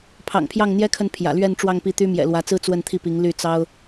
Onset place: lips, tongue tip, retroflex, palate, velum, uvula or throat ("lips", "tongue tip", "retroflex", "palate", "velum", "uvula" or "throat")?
lips